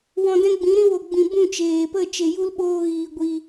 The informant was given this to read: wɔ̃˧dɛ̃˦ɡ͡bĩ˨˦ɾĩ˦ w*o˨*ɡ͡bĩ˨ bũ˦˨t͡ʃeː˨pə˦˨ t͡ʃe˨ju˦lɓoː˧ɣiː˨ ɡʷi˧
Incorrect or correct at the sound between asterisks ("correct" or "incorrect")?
correct